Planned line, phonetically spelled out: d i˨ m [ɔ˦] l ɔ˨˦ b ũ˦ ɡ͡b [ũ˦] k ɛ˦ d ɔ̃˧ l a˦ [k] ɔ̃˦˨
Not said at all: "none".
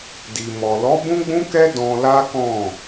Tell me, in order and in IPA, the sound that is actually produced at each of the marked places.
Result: ɔ˨, ũ˦, k

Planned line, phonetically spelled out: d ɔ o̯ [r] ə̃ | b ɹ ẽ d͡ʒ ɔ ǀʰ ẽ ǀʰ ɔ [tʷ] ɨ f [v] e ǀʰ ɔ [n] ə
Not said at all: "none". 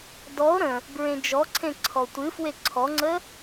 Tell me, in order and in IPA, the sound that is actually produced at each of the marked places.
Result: ɾ, tʷ, w, ŋ͡ǀ

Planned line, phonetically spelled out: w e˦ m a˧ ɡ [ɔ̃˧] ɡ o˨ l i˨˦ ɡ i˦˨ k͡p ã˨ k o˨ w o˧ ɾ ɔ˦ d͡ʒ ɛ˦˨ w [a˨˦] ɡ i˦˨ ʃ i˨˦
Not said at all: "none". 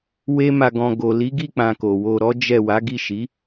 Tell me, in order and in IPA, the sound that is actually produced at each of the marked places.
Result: ɔ̃˧, a˨˦

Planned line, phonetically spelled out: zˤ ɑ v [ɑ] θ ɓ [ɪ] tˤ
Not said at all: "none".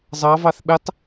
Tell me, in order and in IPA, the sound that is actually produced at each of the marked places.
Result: ɑ, ɪ

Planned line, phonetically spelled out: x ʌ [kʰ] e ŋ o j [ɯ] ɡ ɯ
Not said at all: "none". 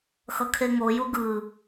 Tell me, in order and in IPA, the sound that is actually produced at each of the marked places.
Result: kʰ, u

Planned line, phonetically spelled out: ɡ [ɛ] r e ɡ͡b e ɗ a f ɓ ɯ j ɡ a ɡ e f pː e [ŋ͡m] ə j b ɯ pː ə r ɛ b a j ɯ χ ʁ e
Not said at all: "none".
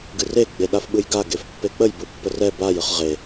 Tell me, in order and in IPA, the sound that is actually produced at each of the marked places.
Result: ɨ, k͡p

